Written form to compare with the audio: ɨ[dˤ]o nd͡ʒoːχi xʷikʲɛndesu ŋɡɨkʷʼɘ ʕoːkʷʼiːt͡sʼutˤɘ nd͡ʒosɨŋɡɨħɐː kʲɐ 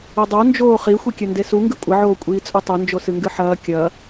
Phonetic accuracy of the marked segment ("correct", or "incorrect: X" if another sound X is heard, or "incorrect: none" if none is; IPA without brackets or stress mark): correct